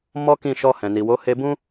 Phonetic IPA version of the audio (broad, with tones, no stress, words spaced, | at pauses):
mɔ˦kĩ˦˨ʃɔ˧ hɛ̃˨ni˨wo˨˦ he˧bũ˦